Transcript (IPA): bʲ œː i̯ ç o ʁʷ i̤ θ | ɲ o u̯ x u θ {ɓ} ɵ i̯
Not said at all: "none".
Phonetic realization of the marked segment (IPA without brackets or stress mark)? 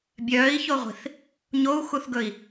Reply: ɡ